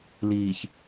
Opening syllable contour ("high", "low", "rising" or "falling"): low